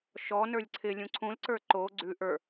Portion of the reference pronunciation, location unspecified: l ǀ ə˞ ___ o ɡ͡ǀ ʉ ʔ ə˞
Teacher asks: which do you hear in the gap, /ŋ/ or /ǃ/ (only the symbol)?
ǃ